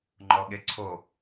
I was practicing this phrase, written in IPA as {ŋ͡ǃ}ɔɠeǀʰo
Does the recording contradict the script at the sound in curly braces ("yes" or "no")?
no